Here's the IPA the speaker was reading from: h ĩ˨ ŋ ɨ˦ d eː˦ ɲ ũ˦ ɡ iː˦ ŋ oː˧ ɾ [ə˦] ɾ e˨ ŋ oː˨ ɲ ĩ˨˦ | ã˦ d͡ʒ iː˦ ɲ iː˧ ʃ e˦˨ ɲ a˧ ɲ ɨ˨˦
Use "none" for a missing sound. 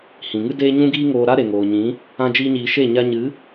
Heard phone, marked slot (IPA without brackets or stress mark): a˦